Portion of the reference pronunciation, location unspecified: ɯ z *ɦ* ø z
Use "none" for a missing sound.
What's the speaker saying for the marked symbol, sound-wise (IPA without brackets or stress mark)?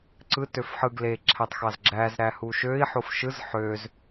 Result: ħ